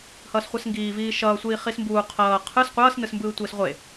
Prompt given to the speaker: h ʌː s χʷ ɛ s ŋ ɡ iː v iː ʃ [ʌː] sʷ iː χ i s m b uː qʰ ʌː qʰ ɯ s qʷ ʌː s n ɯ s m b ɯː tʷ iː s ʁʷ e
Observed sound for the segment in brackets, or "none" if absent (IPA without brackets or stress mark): ʌː